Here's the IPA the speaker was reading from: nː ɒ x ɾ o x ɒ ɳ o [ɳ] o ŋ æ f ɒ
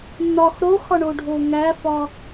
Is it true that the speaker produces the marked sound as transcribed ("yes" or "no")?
no